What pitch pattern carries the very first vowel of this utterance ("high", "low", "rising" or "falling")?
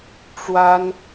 high